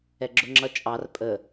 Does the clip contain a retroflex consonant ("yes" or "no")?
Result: no